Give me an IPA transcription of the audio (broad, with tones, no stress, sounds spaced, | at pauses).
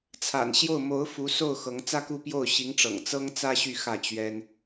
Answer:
t͡sʰ a̰˨˩ n ɕ j o˥˩ ʊ̯ m o˧˥ ʊ̯ f u˧˥ s o˥˩ ʊ̯ x ɤ˧˥ ŋ t͡s ä˥ k u˥˧ p j o˥˩ ʊ̯ ɕ i˧˥ ŋ ʈ͡ʂ ɤ̰˨˩ ŋ t͡s ɤ˥ ŋ t͡s ä˥ ɕ y˥˧ x ä˥˩ t͡ɕ ɥ ɛ˥ n